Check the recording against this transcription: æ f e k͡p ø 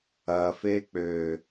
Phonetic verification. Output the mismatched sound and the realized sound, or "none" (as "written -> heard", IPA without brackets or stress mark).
æ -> ɐ